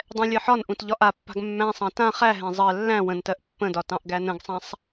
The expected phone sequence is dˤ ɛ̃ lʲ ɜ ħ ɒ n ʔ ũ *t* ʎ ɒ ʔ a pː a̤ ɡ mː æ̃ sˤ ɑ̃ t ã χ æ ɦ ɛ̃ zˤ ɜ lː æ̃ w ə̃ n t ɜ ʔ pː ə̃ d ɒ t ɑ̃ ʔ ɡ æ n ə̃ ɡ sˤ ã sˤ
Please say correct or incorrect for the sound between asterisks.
correct